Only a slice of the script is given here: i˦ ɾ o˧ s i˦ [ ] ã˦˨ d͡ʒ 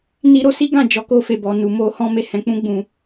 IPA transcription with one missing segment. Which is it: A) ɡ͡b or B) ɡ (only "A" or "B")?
B